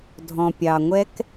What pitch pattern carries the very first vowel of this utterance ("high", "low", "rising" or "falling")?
low